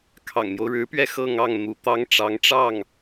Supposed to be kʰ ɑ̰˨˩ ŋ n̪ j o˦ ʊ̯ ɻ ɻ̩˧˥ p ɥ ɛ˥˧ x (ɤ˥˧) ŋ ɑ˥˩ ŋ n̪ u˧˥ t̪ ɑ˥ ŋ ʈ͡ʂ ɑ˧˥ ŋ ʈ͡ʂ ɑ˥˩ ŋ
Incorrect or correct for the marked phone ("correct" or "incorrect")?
correct